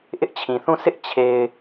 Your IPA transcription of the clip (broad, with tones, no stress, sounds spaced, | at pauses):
ʔ ɪ˦ ʔ t͡ɕʰ ĩ˨ θ ũ˦˨ s ɪ˦ ʔ t͡ɕʰ e˨ ɪ̯